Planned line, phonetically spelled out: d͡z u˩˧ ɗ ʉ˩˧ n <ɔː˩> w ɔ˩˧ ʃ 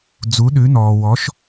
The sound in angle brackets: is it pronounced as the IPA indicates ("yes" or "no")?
yes